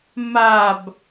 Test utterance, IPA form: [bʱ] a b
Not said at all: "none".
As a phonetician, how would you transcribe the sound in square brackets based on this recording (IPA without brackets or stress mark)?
m